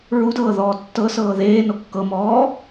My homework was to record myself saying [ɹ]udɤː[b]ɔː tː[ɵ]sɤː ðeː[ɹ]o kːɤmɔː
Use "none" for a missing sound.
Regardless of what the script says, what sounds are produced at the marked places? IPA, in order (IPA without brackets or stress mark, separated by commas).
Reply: ɹ, ð, ɤ, n